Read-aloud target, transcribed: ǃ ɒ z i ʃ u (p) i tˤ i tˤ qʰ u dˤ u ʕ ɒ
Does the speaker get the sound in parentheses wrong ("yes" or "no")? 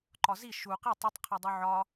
yes